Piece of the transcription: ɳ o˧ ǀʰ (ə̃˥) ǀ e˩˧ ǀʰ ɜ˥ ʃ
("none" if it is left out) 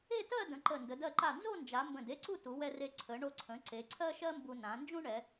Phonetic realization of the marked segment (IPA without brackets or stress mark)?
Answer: ə̃˩˧